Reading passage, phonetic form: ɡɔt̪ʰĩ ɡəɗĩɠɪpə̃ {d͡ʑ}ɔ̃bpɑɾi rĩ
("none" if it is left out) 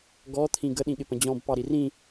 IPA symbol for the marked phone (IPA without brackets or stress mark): d͡ʑ